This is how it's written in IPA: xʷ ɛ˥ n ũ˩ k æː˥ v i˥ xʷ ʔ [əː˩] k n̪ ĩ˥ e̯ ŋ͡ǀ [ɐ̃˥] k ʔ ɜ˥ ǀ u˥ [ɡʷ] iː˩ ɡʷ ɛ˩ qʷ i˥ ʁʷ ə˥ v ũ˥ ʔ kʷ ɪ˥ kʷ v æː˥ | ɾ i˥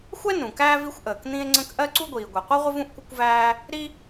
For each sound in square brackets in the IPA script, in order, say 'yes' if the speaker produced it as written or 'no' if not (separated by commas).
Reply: yes, no, yes